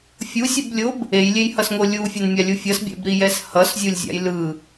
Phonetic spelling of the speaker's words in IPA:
fʲ u sʲ u b lʲ o b | e j lʲ e j h ʌ s ŋ o lʲ u fʲ e n mʲ a lʲ u fʲ ʌ s bʲ ɛ̰ b ɾ i j ɛ s h ʌ s zʲ u lʲ zʲ a̰ j l ɯ

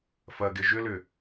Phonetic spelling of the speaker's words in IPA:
f ɐ ɡ ɪ ʒ ʏ l ʏ

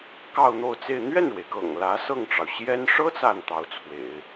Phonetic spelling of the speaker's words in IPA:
k ɑ˥˧ ʊ̯ n̪ o˥˧ ʊ̯ t͡s e˥˧ ɪ̯ n̪ ɥ ɛ˥˩ n ɻ w e˩ ɪ̯ k ɤ̰˨˩ ŋ l ä˧˥ s ɤ˥˩ ŋ ʈ͡ʂ ɑ˩ ʊ̯ ɕ j ɛ˥ n ʂ ɤ˥ t͡s a˥˩ n t̪ ɑ˧˥ ʊ̯ t͡sʰ w ḛ˨˩˦ ɪ̯

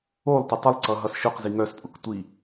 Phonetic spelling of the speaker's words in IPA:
o lˠ t ɪ tˤ ə lˠ ǀ ʌ ɦ ʌ s ʃ ʊ q z i ŋ œ s pʼ ʊ k tʷ i

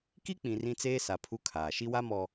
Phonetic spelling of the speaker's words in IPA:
k i˦ k͡p ĩ˨ r ĩ˦ t͡s eː˦ s a˨ pʰ u˦ kʰ aː˨ ʃ i˦ w a˦ m ɔ˨

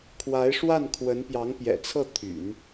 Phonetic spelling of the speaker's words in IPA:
kʰ w a˧˥ ɪ̯ ʂ w a˥˩ n kʰ w ə˧˥ n p j ɑ˧˥ ŋ p j ɛ̰˨˩ t͡sʰ ɤ˥˩ t̪ʰ y̰˨˩˦ n

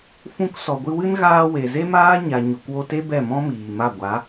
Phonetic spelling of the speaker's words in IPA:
f ũ˧ k s ɔ˨ ɡʷ ɨ˧ w ɨ˦ n ɣ aː˧ w e˨ z e˦ m aː˦ ɲ a˧ ɲ o˨ k w o˧ t e˦ b ɛ˦˨ m ɔ̃˦ m iː˨ m a˦˨ ɡʷ a˨˦

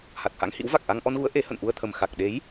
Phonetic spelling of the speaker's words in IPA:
h a˨˩ t̚ h a̰˧˥ ŋ h ḭ˧˥ w v a˨˩ k̚ ʔ a˧ ŋ ʔ ɔ˧ n ɣ u˨˦ ə̯ ʔ e˨˦ h ə̰˧˨ n ʔ u˧ ə̯ t̪ʰ ə˨˩ m x a˨˩ k̚ ɗ e˨˦ j

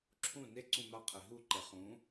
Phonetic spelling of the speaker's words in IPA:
ǁʰ ũ n e ǀ ũ m a qʰ ɛ ɦ u ǃ ɛ χ ũ

